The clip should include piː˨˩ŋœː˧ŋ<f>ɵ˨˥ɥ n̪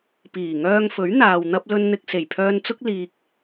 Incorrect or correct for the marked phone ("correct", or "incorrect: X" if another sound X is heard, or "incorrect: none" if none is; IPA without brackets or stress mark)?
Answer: correct